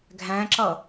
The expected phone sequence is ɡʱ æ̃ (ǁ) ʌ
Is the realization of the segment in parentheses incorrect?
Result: no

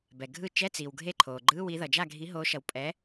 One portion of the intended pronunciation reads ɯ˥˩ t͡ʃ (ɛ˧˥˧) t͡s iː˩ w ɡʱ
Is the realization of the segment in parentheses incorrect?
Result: no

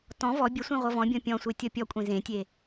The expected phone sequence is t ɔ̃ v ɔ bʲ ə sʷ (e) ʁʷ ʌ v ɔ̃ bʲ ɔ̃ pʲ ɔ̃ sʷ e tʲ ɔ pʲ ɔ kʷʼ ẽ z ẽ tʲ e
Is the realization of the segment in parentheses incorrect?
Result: yes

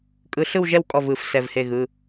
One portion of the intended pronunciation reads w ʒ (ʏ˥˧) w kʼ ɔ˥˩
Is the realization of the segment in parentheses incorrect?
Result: yes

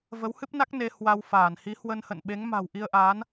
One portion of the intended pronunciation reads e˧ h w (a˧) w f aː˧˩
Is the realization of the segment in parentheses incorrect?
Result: no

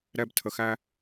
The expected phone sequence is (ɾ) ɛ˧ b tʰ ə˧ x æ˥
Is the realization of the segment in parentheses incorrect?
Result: no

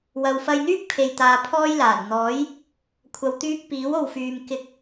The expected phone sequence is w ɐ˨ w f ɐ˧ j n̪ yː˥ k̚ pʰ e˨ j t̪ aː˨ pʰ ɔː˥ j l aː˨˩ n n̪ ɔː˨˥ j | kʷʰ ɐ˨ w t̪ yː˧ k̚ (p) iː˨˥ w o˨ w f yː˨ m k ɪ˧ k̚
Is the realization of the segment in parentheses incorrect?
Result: no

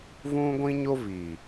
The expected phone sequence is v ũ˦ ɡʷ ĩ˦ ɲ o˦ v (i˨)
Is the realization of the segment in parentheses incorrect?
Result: no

